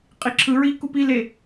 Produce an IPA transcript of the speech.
qʼ i ǁʰ ɯ ɹ i k u p i l e

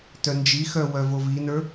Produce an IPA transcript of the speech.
t œ n d͡ʒ i x œ w œ v o v i n ə˞

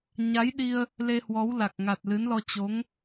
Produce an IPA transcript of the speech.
ɲ a˨˦ j ɗ i˧ ə̯ | l e˧ h w ɔ˨˦ w l a˨˩ k̚ ŋ a˨˩ t̚ l ɨ˨˦ n l ɔ˧ t͡ɕ o˨˦ ŋ

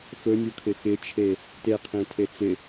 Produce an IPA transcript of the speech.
f ɵ nʲ u kʰ ɪ x ɪ t͡ʃʰ e | t e qʰ ĩ tʰ e t͡s ɪ

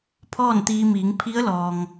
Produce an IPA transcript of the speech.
pʰ ɔː˥˨ n t̪ iː˧ m iː˩˧ ŋ pʰ i˧˥ ə̯ l ɔː˩ ŋ

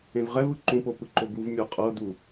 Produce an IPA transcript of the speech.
ẽ v ʁ ɛ v ɯ ǃ ũ p o p ɯ ǃ o ɡ u v mʲ ɤ qʼ ɤ d u

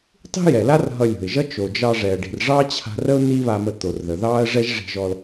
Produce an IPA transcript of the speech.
tˤ i̤˥ j ɛ˩ l a˥ r ɦ ʌ˧ lʲ o̤˩ ɪ̯ ʒ ʌ˥ t͡ʃ o˩ d͡ʒ ɑ˧ ʐ ɛ˩ ə̯ ɖ i̤˩ r ʐ ɑ˥ t͡ɕʰ a̤˧ r ə˥ ʊ̯ n iː˥ β a˧ m ə˧ t̪ o˩ r ð ə˩ ð ɑː˥ ə̯ ʐ ɛ˥ ʒ ʐ i̤˧ ʒ ɔ˧ l

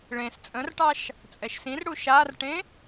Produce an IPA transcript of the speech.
ɭ ẽ s t͡sʼ ə̃ r ʈ ɑ ʃ | t͡sʼ ɛ ʃ s ĩ r ɽ u ʃ a r ʈ ẽ

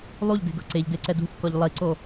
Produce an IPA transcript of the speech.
lˠ u ʎ d e̤ ɡ ɤ ǀ e ʎ d e ǀ ɛ d ṳ θ k ɔ ʎ lˠ i ǀ o

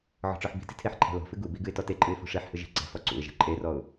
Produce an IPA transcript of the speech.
ʕ ɔ̤ ʈ͡ʂ ɔ ħ b i̤ t i̤ tʰ e ħ ǃʰ ɛ̤ l ɔ̤ f ɨ ɡ u b i ɡ ɨ ɪ̯ t ɔ t e ǃʼ ɨ ɪ̯ f o̤ ʂ e ħ h ɨ ʒ i̤ ǀ ɛ̤ f ɔ ǀ ṵ ɪ̯ ʒ ɛ̤ ǃʼ e r ɔ ʊ̯

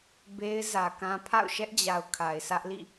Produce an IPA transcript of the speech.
b e˦ ɪ̯ z ä˨ k ã˦ pʰ a̰˦˨ ʊ̯ ʃ ɛ˦ ʔ d͡ʑ a˨ ʊ̯ kʰ a˨ ɪ̯ s ä˦ ʔ l ḭ˦˨

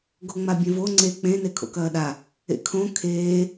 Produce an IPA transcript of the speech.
ɡ o ŋ͡m a bʲ ẽ v o ŋ͡ǀ e k͡p ẽ n e kʰ o̰ k ɐː ɗ a | ḛ kʰ õ kʰ eː

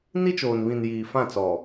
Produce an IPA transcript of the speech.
n i˦ t͡ʃ oː˨ n β ĩ˨ n j iː˨ f ã˦˨ t͡s ɔ˨

